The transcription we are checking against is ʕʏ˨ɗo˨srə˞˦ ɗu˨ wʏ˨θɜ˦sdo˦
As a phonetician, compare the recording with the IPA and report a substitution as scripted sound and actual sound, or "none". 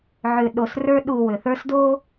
ɜ˦ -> ə˞˦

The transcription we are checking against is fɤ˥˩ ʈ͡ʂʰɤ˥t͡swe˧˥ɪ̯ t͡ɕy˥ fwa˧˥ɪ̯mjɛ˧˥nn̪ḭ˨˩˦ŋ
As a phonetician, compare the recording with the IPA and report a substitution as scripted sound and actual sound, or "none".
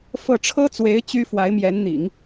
none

